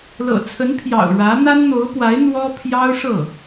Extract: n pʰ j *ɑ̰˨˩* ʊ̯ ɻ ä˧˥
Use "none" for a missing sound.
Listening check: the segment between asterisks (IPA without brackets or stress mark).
ɑ̰˨˩